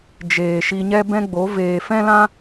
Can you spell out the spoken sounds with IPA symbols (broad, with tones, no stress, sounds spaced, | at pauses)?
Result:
d͡ʒ eː˨ ʃ i˧ ɲ ɛ˦ b ɛ̃˦ ɡ͡b o˨˦ v eː˨ f ɛ̃˦ l ã˦